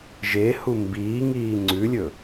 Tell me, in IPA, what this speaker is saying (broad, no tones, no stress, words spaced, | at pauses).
ʒehu mbiː ŋiːŋ͡ǀʉlʲɵ